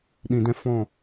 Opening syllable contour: low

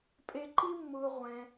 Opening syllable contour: low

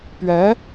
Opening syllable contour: rising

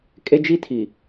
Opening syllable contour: high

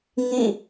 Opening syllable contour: falling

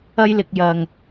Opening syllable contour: high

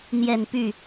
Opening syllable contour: falling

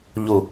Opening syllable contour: low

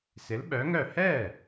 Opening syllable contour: rising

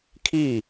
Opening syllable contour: falling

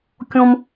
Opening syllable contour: high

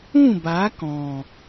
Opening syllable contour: falling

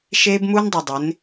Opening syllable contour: high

